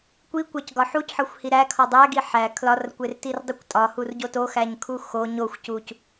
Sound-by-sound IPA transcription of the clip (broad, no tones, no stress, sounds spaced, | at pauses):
kʷ i kʷ æ c ɡ ɒ ħ u c ħ ɒ xʷ h i ɾ æ kʰ ɒ dˤ æ ɡ i ħ æ kʰ l ɒ r kʷ e r t i r dˤ u kʷ tʼ ɒ h u r ɟ o t o x æ ɲ kʰ u x o ɲ o xʷ c u c